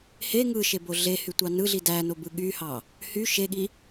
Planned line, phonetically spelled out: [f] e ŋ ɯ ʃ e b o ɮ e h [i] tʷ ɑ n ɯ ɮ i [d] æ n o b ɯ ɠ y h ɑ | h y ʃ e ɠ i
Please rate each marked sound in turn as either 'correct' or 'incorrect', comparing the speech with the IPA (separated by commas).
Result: incorrect, incorrect, correct